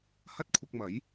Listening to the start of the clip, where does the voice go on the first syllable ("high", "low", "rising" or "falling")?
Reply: high